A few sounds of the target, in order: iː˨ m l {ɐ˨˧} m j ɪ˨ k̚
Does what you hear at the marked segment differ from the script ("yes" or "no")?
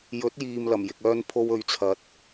yes